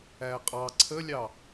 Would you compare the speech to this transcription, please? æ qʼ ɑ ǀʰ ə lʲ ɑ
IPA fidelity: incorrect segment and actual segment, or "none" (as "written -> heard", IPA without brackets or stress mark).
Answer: none